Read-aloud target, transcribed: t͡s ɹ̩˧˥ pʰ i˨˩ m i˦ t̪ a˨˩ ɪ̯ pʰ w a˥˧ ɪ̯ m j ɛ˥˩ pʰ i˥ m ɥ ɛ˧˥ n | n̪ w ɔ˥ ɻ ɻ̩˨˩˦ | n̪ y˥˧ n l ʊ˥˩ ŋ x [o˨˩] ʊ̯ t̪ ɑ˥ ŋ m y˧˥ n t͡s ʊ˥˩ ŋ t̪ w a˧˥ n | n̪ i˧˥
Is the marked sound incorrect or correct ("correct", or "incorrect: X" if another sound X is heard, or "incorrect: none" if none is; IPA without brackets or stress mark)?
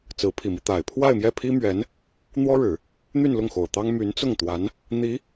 correct